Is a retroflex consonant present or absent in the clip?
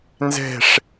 present